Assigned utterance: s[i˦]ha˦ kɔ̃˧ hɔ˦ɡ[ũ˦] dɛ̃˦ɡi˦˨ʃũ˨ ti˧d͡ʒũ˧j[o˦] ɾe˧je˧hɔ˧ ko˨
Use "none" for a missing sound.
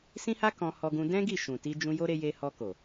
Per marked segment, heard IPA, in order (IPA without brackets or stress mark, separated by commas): ĩ˦, ũ˦, o˦